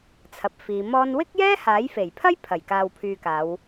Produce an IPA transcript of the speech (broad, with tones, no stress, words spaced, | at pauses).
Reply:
t͡sʰɐ˨p̚fiː˨˧mɔː˥n wɪ˥k̚jɛː˥ haː˨˥jfe˨˩jpʰɐ˥j pʰɐ˨˩j kaː˨wpʰyː˨kaː˨˧w